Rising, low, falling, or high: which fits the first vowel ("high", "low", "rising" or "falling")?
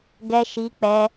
high